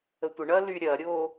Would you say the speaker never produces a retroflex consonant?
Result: no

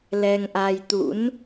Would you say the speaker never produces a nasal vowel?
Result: yes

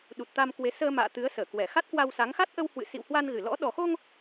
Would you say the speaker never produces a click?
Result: yes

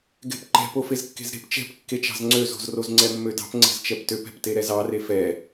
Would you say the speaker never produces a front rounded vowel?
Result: no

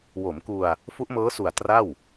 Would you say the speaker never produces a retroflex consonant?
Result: yes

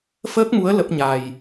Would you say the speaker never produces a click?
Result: yes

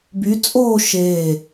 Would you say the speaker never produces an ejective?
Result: no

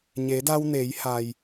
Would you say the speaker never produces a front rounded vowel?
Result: yes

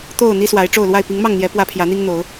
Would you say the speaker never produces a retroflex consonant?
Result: no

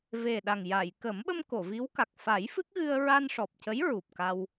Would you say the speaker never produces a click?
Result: yes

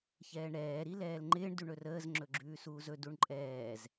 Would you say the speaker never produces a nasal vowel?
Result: yes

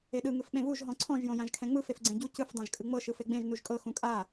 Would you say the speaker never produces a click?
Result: no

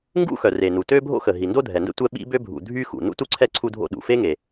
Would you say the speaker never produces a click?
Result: no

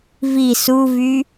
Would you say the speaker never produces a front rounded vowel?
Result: no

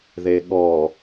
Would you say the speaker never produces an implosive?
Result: no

